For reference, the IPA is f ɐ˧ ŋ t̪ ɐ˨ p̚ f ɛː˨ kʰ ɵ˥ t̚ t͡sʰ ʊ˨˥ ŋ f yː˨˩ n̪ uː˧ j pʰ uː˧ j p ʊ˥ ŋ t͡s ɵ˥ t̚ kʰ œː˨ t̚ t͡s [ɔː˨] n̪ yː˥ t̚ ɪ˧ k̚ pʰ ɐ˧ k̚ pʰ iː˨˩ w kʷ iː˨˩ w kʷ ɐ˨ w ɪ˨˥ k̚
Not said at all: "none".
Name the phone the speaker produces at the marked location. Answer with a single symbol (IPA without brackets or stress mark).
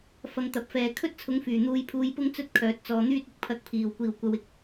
ɔː˨